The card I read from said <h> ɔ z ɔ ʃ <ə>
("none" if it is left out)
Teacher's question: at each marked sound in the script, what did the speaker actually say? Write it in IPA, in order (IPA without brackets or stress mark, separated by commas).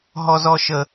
ɦ, ə